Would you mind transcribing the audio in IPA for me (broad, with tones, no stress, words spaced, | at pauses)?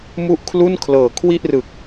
mu˥˩ʔkʰlu˥˩nkʰlɤː˨˩ kʰwi˥˩ʔrɯ˨˩k̚